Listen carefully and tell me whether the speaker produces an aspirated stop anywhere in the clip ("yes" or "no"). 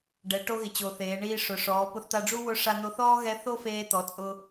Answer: no